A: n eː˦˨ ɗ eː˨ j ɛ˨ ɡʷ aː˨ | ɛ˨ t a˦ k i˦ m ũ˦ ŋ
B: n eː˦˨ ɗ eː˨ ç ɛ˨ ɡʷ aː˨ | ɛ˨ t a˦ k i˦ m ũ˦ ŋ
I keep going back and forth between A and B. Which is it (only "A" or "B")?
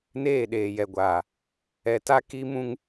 A